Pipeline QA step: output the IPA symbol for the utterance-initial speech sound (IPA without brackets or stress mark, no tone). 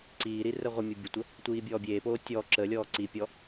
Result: ǀ